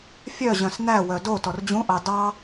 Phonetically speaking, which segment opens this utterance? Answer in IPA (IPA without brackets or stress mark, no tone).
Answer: fʲ